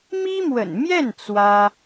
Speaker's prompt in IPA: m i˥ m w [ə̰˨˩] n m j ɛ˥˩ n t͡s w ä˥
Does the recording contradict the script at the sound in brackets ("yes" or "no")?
no